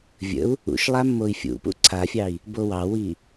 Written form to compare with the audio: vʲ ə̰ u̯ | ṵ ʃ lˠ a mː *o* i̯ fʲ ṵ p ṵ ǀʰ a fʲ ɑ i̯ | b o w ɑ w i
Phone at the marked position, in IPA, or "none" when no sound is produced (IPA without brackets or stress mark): o